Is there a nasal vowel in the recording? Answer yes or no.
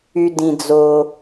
yes